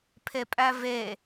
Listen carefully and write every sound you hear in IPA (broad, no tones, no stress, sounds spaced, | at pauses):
pʰ e pʼ æ v e